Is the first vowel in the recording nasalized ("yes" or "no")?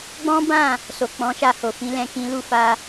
yes